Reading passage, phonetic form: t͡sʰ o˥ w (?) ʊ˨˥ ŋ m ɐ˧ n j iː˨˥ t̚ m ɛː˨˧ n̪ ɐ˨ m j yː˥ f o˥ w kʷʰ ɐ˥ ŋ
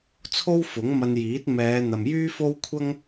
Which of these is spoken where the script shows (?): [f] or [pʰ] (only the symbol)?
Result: f